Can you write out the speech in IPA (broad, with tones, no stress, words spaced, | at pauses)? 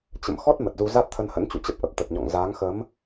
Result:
t͡ɕə̰˧˨m xɔ˦˥t̚ mə˨˩t̚zu˧ za˦˥t̚t̪ʰə˧nhə̰˧˥nt͡ɕṵ˧˨ t͡ɕə˦˥p̚ʔə˨˩p̚t̪ə˨˩t̚ɲɔ̰˧˨ŋ zaː˨˦ŋxə˨˦m